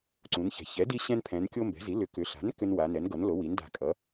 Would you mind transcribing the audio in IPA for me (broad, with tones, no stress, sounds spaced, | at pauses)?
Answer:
ǀ ũ˩˧ n ç ɛ̤˩˧ ç ɛ˩˥ d i˦ ɕ ɛ̃˦ n pʰ ɛ̃˩˧ n kʲ o˦ m b ɛ̤˩˥ z i˩˥ l ʏ˩˥ k ʏ˩˧ ɬ a̤˩˥ n k ʏ˦ n w a˩˧ n ɛ˩˥ n ɡ ʌ˩˥ n l o˩˥ w i˩˥ n d a̤˧˩ kʼ ʌ˩˥